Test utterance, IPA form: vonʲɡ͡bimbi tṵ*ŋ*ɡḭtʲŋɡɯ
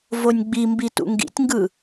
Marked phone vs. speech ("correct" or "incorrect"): correct